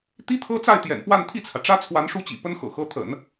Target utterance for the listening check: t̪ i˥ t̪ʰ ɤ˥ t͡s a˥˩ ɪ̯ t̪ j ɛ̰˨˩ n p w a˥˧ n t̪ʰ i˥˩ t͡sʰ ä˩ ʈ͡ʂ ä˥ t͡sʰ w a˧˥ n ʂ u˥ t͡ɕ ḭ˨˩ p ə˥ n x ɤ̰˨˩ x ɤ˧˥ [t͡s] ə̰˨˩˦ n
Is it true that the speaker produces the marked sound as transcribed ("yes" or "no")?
no